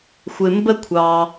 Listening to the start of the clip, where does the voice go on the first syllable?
low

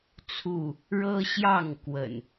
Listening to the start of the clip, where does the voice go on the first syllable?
falling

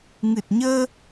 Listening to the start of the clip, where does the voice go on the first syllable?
low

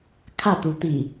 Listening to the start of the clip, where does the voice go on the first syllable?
falling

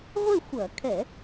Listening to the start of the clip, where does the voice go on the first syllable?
falling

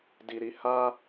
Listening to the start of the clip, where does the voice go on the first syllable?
low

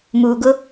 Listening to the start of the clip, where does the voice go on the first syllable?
low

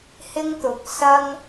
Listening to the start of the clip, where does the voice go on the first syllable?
high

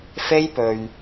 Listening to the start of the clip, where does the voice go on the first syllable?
high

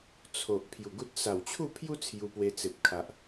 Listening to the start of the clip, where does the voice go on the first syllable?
low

